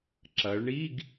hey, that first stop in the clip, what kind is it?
click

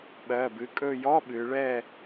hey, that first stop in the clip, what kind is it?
implosive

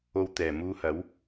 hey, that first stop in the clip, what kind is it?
plain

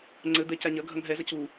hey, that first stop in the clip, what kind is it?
click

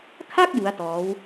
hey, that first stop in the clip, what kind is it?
aspirated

